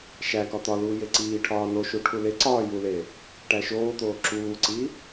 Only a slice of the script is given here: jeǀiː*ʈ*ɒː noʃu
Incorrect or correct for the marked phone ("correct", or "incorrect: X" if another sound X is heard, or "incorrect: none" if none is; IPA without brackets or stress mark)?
incorrect: ʈʰ